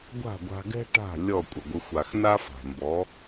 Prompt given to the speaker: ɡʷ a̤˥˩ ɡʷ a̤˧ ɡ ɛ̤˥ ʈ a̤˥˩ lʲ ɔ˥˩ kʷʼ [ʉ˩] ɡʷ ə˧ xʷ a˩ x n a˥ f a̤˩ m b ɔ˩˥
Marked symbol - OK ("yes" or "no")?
no